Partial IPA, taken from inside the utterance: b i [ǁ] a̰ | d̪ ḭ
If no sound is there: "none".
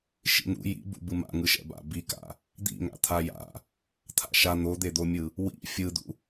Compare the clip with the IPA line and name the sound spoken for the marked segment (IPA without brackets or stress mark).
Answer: k